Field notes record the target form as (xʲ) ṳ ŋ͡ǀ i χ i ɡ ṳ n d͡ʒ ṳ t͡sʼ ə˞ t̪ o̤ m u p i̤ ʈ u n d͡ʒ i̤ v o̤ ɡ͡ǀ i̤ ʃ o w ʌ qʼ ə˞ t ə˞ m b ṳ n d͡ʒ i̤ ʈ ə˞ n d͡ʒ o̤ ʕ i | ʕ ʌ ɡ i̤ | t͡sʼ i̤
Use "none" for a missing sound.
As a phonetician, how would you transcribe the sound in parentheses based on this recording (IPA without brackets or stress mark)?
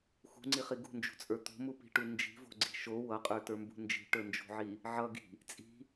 x